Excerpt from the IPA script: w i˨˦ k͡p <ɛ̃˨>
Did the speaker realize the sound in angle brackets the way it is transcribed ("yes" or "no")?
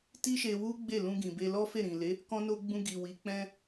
no